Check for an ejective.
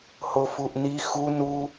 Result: absent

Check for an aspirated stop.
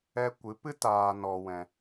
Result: absent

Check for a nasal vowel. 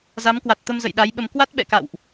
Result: absent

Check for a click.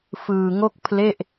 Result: absent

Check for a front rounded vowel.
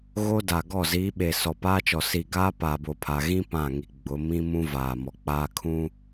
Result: absent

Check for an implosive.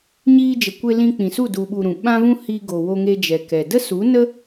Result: present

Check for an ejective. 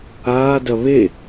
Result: absent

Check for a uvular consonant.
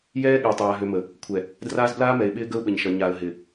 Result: absent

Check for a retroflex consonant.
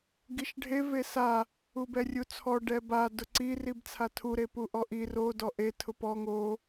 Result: present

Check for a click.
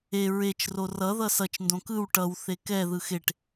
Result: absent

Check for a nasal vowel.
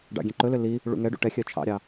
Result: present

